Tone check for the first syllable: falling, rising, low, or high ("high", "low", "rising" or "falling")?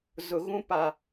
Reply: low